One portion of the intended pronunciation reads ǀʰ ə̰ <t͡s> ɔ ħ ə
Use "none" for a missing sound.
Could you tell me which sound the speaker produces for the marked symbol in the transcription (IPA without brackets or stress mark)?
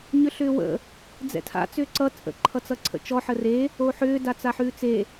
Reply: t͡ʃ